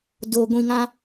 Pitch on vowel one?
low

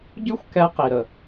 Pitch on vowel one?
high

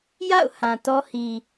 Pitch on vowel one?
falling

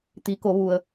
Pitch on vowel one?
rising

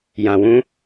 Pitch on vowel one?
low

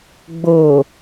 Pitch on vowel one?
low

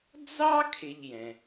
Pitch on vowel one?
high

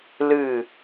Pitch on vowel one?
falling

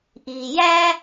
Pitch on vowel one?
low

